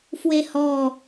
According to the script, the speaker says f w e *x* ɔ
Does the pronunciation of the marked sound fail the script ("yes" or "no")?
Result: yes